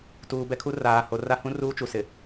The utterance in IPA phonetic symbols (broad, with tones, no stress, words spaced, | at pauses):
tuː˨bɛ˦kʰu˦ raː˨ho˨ ra˦hũ˦ruː˦ t͡ʃu˨sɪ˨